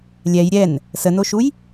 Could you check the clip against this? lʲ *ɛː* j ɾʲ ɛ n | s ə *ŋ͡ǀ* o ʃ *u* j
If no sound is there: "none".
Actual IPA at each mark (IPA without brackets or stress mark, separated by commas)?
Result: ɛ, n, u